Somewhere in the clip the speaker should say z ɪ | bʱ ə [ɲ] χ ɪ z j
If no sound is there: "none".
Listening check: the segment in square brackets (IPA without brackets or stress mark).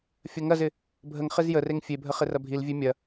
ŋ